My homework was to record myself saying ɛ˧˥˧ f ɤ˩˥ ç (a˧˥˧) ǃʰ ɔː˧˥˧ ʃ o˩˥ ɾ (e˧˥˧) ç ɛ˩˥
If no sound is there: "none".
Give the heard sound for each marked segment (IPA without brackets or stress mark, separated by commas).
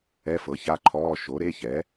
a˧˥˧, e˧˥˧